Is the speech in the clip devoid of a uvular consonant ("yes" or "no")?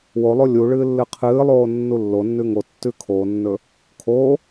no